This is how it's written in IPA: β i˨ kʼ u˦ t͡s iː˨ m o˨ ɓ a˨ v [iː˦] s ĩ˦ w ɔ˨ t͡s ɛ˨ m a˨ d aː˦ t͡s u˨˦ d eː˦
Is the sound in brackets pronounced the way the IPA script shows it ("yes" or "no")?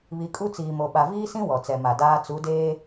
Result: yes